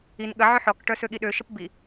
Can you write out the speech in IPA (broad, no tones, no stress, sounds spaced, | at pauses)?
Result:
i n ɠ ə ʕ ʏ ħ ɔ k ʈ œ s ø ɠ i ɗ ø ʃ ə p b i